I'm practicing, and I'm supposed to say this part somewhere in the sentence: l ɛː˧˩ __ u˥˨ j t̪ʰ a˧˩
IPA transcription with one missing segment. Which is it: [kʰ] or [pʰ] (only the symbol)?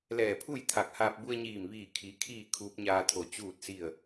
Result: pʰ